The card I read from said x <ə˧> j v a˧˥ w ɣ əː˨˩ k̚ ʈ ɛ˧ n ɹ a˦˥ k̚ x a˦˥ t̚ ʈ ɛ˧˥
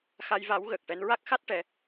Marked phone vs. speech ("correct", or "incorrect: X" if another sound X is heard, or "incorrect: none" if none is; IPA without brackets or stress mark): incorrect: a˧